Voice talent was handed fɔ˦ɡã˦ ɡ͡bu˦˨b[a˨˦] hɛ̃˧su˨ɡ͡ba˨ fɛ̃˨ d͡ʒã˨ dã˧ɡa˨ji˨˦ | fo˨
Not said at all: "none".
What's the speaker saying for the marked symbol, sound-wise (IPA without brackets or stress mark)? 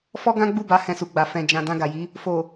a˨˦